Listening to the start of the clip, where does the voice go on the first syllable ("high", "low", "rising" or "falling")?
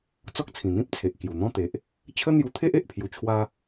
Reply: high